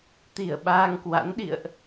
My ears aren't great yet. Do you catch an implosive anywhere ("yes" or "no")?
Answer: yes